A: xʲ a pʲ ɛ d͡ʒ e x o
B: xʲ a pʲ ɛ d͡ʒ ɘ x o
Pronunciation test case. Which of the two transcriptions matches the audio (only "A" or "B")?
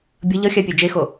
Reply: A